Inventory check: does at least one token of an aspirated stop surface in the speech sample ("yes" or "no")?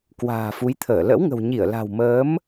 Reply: yes